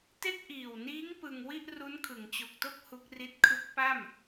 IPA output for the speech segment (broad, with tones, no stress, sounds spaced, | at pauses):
t e˥˩ k̚ ʔ iː˨˩ w n iː˦˥ ŋ p ɯ˧ ŋ w i˥˩ ʔ r u˦˥ n kʰ ɯ˩˦ ŋ t͡ɕ o˨˩ k̚ t o˥˩ k̚ h u˦˥ k̚ r i˦˥ t̚ kʰ ɯ˦˥ k̚ p a˥˩ m